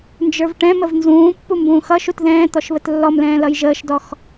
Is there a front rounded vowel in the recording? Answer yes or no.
no